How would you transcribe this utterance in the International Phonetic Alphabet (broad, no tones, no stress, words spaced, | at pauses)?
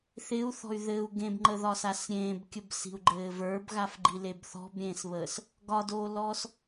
θɪu̯θɔ̤y̯ ðɘu̯ ɡẽbŋ͡ǃəðɒsas ɾʲẽːbkʲəbsi̤u̯ɡ͡ǃɘː və˞bɣafɡ͡ǃileb θɔ̤bɾʲẽːsβəːs | ɡɒdoːlɔːs